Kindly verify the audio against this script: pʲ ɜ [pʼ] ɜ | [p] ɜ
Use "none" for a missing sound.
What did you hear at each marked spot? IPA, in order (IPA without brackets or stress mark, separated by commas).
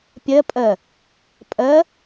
pʼ, pʼ